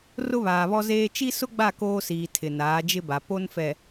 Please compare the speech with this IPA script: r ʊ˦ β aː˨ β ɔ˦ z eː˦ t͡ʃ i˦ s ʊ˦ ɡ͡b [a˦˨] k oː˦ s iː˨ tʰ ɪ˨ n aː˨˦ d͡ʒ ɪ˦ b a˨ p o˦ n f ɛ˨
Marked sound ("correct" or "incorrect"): correct